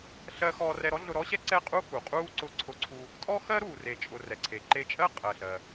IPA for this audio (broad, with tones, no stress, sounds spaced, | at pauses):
ɬ ɜ˧ x ɔː˧ r ɛ˧ ɾ ɔ˥ ɮ ʊ˧ ɾ ɔ˥ ɕ ɛ˥ ǀ ɛ˥ qʼ u˥ x u˩ qʼ uː˥ ǀ ʊ˧ ǀʰ ʊ˧ ǀʰ u˧ | tʼ ɔ˥ x ɜ˥ ɾ uː˩ r e˩ t͡ʃʼ ʊ˩ r ɛ˩ ǀʰ e˩ ǃ e˧ t͡ʃʼ ɜ˥ qʼ ɜ˩ ɬ ɜ˩